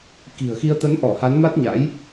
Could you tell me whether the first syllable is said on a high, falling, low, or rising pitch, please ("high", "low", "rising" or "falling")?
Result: low